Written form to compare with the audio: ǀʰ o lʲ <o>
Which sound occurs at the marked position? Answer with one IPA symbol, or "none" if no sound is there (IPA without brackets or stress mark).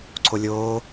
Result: oː